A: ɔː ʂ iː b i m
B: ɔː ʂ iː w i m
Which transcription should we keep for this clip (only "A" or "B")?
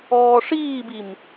A